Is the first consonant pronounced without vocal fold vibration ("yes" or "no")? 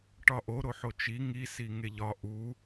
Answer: yes